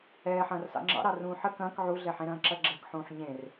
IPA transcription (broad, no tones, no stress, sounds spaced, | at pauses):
ɛː ħ ɐ̃ː r s ɑ̰ ŋ͡ǁ ɑ̰ ɾ ɑ r ũː ħ ə k ɐ̃ː k ʕ u ɮ ɛ ħ ẽ ɾ ɐ̃ː ǁ ɐ ɡ͡ǁ ɐ k ħ ũː ħ ɲ ẽ r